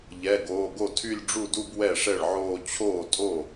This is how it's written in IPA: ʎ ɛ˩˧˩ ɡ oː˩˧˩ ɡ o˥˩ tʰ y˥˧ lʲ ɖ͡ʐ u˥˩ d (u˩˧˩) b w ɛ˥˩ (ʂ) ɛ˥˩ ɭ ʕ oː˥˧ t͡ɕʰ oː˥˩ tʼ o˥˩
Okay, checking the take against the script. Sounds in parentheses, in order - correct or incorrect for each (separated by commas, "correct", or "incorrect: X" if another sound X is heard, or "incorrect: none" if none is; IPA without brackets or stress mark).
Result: incorrect: u˥˧, correct